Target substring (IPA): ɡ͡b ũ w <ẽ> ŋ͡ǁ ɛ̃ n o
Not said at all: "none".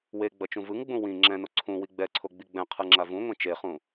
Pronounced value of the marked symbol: ĩ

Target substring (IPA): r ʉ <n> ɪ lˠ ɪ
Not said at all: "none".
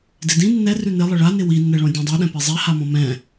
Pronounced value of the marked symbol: n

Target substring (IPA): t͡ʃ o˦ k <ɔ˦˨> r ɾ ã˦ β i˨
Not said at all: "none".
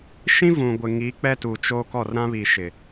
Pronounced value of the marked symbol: ɔ˦˨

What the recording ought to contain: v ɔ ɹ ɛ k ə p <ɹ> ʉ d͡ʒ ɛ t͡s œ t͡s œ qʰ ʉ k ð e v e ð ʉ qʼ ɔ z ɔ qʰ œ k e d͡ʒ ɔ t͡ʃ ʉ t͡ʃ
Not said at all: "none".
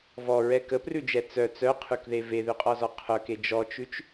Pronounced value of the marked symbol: r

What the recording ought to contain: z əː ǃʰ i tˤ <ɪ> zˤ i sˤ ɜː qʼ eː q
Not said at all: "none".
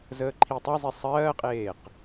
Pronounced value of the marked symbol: i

